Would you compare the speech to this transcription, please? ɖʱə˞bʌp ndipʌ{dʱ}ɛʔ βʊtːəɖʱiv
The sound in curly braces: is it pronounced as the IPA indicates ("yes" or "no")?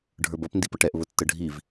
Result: no